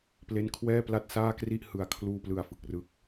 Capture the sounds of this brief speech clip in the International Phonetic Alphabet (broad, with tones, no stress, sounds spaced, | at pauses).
p l e˦˥ n kʰ w ɛː˥˩ p l a˥˩ t̚ s aː˥˩ k r i˥˩ ʔ h ɯ˨˩ a̯ kʰ l uː˧ p l ɯ˨˩ a̯ f ɯ˨˩ k̚ r ɯ˦˥ k̚